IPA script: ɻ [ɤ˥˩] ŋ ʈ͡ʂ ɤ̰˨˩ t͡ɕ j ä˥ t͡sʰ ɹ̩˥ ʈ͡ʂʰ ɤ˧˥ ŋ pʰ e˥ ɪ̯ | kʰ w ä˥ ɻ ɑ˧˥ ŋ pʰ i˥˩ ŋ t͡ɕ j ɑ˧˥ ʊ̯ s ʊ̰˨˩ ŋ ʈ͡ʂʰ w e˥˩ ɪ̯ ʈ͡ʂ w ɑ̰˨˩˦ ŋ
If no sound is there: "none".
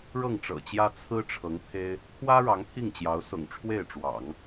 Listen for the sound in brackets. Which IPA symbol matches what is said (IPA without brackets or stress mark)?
ɤ˥˩